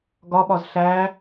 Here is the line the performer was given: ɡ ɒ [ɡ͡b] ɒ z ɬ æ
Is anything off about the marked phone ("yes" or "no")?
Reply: yes